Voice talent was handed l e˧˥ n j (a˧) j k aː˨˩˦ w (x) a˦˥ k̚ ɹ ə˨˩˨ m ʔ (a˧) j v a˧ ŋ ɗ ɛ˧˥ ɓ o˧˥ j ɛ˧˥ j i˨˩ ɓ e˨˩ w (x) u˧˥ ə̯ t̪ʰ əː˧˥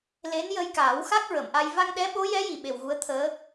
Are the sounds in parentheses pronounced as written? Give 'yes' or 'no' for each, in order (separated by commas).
no, yes, yes, no